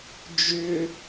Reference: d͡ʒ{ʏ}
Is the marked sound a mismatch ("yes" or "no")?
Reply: no